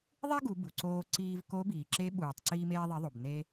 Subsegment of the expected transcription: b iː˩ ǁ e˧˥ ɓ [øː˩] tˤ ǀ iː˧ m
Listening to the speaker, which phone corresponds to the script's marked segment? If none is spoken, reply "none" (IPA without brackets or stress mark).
uː˩